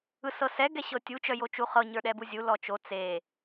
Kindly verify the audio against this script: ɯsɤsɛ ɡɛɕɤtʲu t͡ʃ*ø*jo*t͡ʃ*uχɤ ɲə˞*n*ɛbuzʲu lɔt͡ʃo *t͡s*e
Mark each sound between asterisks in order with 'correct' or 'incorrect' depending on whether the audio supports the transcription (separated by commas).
incorrect, correct, incorrect, correct